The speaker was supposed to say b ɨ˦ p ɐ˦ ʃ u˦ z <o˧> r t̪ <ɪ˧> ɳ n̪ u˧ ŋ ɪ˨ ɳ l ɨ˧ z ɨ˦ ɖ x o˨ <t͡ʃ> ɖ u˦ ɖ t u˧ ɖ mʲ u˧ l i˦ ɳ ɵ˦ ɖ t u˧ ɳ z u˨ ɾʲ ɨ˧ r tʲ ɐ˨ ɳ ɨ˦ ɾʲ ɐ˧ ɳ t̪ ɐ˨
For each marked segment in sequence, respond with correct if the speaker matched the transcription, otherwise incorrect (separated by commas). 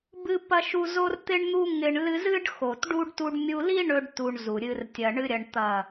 correct, correct, incorrect